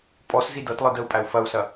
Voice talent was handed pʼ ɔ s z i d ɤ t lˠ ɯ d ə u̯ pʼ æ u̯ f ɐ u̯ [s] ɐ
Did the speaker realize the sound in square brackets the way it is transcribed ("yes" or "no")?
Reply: yes